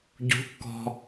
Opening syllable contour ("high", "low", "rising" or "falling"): rising